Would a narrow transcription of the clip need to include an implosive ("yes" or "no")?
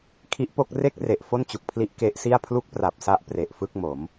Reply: no